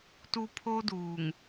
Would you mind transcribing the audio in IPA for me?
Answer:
tu˦ pʰo˦duː˨ŋ

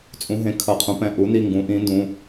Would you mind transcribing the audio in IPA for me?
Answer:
t͡sʼũ˩˥ɦẽ˩˥kʰʌ˩˧˩qʰũ˩˥ pɛ̃˩˧˩ʔu˩˥ni˩˧˩ ŋɡũ˩˥ʔĩ˩˥ndũ˩˧˩

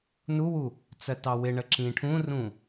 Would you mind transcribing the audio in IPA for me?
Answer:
nuwu | t͡sɜtɑwɪɳə ǁĩʈʰũrũ

